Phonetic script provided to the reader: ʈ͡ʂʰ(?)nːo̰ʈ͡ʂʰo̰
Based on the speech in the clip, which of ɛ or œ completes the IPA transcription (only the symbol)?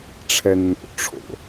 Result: ɛ